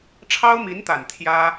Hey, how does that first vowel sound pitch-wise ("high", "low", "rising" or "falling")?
high